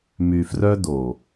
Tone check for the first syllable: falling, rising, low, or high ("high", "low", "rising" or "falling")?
low